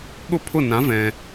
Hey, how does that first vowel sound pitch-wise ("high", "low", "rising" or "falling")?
high